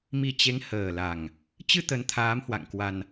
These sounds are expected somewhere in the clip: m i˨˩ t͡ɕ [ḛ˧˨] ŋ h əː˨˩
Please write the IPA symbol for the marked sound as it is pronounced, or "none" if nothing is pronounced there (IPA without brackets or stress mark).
e˨˦